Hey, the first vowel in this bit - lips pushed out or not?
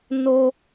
yes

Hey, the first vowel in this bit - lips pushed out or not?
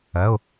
no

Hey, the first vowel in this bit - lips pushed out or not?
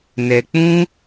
no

